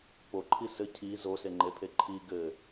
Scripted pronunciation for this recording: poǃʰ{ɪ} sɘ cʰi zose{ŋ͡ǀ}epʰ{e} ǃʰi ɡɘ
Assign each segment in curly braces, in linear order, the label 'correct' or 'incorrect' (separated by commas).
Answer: incorrect, incorrect, correct